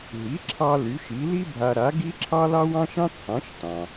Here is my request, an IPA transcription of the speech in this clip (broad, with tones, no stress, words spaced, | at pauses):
ɦi˩˥ǁʰɑ˧ ly˩˥ʃi˩˥li˥bʱa˧ ɾa˩˥ɡ i˥ǁʰɑ˥ lɑ˥wɑ̃˥ʃɑ̃˥ t͡sʰɑ̃˩˥ʃtɑ̃˩